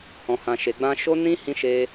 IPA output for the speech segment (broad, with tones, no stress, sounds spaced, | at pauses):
h ɔ̃˧ h ã˧ ʃ e˧ ɡ͡b ã˦ ʃ o˧ n ĩ˧ h ĩ˧ ʃ e˧